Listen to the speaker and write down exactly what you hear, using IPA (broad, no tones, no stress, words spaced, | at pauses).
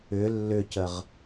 ʏ lːʏcəʁ